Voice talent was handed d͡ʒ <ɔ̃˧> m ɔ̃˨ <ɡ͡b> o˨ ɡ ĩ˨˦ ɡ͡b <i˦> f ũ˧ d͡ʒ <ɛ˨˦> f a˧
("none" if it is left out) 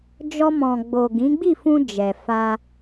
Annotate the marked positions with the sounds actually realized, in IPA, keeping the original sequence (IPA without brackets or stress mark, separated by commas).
ɔ˧, ɡ͡b, i˦˨, ɛ˨